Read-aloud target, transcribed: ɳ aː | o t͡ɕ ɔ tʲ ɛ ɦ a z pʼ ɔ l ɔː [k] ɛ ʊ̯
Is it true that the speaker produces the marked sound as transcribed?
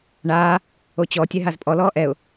no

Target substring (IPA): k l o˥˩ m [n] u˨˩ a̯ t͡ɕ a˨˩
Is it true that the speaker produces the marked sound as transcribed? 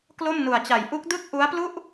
yes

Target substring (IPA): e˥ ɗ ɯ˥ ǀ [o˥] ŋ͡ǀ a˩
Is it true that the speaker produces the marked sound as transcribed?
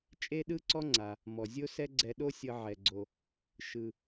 no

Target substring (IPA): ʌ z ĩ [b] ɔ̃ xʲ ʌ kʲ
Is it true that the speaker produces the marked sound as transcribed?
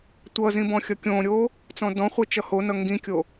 yes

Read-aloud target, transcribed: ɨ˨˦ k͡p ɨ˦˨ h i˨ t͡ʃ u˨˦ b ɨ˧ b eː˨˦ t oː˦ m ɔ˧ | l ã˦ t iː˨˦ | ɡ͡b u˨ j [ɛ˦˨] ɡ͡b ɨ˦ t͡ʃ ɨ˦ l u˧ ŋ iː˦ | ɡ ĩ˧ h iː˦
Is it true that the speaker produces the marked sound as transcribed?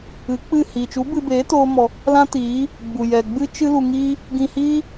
no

